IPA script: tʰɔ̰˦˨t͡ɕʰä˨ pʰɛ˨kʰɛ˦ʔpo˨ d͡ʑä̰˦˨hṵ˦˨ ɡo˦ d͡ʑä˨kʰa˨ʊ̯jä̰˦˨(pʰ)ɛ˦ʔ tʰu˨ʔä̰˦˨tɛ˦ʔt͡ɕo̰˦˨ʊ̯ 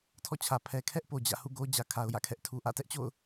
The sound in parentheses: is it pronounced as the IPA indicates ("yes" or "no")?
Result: no